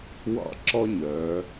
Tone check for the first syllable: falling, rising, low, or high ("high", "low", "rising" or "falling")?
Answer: high